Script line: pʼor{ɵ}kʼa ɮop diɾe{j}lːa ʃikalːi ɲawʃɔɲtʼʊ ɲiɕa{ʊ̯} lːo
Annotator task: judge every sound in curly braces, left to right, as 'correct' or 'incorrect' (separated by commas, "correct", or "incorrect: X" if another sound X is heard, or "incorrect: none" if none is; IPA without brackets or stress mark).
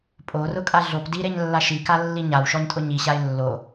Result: incorrect: ʊ, incorrect: ɲ, incorrect: ɪ̯